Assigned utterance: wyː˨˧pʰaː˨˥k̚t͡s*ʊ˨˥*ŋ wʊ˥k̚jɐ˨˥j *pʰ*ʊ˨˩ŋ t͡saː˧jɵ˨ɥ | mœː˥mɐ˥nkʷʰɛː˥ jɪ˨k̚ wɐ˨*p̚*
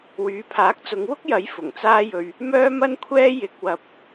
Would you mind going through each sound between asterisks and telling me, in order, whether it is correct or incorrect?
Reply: incorrect: ʊ˨˧, incorrect: f, correct

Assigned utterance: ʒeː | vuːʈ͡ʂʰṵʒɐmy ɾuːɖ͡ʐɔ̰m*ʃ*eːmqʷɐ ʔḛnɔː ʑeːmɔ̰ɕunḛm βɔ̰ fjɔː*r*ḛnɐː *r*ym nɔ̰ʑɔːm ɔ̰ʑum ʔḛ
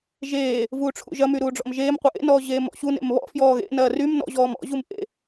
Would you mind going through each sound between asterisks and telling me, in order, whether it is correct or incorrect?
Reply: incorrect: ʒ, incorrect: ɣ, correct

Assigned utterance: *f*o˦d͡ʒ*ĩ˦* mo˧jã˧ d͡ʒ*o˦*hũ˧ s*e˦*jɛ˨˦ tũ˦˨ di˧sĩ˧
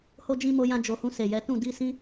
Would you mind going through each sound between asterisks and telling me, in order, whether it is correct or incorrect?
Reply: incorrect: h, correct, incorrect: o˨, incorrect: e˨

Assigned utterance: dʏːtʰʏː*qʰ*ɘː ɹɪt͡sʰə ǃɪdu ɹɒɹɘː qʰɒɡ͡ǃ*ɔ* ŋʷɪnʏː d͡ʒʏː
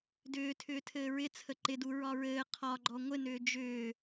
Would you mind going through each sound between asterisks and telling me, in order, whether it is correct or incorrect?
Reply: incorrect: tʰ, correct

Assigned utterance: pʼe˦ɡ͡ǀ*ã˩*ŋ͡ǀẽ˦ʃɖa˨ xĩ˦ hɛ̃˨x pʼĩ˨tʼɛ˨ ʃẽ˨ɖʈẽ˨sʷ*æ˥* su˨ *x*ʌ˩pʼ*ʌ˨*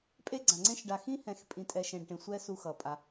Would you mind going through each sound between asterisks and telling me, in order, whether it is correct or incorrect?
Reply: correct, incorrect: ɛ˥, correct, incorrect: a˨

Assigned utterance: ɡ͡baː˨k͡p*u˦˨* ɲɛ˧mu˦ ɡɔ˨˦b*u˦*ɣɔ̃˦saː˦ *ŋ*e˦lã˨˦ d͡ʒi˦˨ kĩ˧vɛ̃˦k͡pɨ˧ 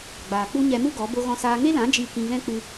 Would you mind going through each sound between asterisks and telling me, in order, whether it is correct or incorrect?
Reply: incorrect: u˦, incorrect: o˦, correct

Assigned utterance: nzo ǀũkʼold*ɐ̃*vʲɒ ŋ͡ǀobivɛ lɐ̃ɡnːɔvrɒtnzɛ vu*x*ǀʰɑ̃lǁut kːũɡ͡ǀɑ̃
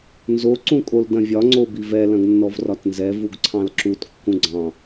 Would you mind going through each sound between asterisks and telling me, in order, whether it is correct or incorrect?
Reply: correct, incorrect: ɡ

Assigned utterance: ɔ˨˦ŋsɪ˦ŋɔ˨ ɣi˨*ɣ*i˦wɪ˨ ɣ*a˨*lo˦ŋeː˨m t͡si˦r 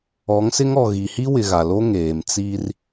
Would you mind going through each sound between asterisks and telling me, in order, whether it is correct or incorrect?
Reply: incorrect: h, correct

